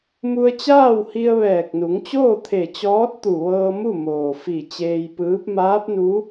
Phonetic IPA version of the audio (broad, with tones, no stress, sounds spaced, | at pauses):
m u˧ ə̯ t͡ɕ aː˥˨ w h i˧ ə̯ ʋ ɛː˧˩ k̚ n u˩˧ ŋ t͡ɕ oː˥˨ t̪ʰ e˧˩ t͡ɕ ɔː˧˥ t̚ t̪ u˧˩ ʋ ɤː˧ m u˥˨ m oː˩ f i˧˩ t͡ɕ eː˧ j p ɯː˧˥ p̚ m aː˧˥ p̚ n u˧˥